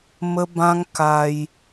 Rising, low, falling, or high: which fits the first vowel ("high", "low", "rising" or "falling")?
high